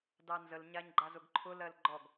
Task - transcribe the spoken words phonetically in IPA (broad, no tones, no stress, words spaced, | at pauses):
dɑnzəl ɲaɲɡ͡ǃazʊɡǃʰʊ lɜlɡ͡ǃɔɡ